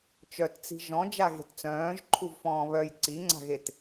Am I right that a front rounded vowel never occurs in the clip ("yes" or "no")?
no